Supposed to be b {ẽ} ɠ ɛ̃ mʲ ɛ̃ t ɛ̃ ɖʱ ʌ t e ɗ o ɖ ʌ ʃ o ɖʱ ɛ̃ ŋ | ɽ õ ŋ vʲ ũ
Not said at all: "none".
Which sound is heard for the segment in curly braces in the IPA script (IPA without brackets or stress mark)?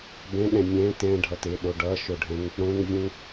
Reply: ɛ̃